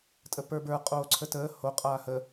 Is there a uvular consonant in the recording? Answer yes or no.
yes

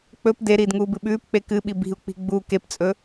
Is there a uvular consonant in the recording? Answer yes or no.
no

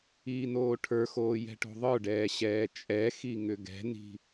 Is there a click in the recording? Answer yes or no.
no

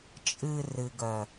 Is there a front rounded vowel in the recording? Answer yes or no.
yes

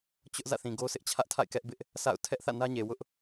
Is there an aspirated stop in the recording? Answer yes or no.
yes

